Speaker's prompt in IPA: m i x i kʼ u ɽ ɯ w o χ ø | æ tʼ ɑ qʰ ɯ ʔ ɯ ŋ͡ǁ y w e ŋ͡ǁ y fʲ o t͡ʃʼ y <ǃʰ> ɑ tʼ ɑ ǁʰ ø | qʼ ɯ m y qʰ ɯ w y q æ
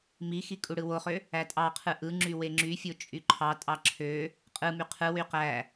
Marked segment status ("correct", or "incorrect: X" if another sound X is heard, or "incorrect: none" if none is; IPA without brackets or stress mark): correct